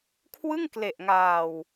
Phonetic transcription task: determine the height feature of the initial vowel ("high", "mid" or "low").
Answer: high